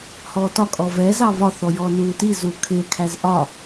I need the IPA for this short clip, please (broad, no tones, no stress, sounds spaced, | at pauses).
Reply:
h ɔː t ɒ kʼ ɔ v ɛ z ɑ v ɒ θ ɔ j ɔː n uː t i z uː kʰ ɪː kʰ æ z ʔ ɒ